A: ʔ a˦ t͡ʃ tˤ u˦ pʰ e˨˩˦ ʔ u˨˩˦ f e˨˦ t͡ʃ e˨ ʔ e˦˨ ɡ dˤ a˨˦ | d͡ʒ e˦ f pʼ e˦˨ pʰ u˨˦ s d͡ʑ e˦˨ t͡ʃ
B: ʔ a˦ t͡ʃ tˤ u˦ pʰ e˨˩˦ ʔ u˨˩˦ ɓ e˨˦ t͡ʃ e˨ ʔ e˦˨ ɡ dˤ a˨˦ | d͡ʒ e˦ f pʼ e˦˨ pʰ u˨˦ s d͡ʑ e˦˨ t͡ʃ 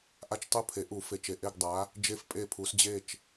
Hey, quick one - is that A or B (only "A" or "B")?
A